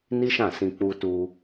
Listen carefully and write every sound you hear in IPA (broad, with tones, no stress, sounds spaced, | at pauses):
n i˦ ʃ ã˦˨ s ĩ˧ k͡p u˧ t u˧